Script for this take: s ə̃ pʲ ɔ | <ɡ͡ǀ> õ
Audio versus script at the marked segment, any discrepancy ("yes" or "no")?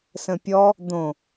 yes